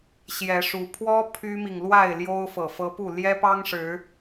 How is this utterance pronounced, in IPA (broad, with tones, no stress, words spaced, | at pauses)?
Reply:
ɕjɛ˨˦ʂu˨˦ pʰwɔ˦ pʰy˦mi˨ŋlwa˥˨ɪ̯ ljo˦ʊ̯fɤ˨fɤ˦ pu˥˨ ljɛ˦pɑ˦ŋ ʂɻ̩˨˦